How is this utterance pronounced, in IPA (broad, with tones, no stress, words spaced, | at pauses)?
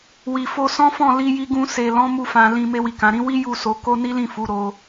wi˨ fo˧sɔ̃˦fɔ̃˦˨ li˧ji˧ɡũ˧ se˨lɔ̃˨˦ mu˦˨fã˧ lĩ˧ me˧wi˨kã˨ɾĩ˨˦ wi˦ ju˦˨so˨˦ko˦ ni˦lĩ˦˨ fu˨˦ɾo˧